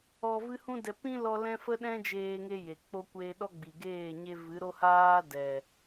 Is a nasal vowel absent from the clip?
no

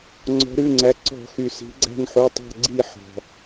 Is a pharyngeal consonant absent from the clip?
no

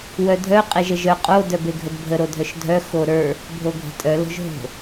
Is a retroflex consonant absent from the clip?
yes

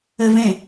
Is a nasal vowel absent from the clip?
no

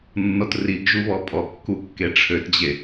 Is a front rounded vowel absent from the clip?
no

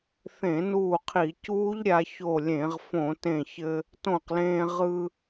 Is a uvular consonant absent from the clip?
no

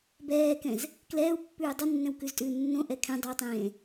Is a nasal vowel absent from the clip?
no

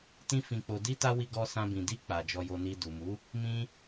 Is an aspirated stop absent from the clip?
yes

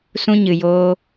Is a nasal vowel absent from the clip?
no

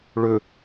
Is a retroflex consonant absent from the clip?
no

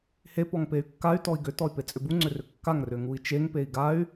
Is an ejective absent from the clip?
no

